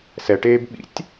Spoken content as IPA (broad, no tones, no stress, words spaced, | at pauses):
sɛʈeːb ɓḭtʲ